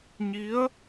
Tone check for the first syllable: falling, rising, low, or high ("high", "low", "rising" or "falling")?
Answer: rising